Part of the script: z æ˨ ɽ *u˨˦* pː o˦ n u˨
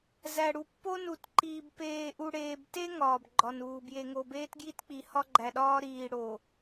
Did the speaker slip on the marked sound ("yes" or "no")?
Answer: yes